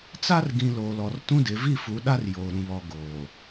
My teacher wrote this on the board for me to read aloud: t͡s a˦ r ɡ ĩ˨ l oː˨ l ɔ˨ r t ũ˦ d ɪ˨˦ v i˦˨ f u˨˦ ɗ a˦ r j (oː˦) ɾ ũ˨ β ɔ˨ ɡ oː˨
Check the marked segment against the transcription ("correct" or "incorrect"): incorrect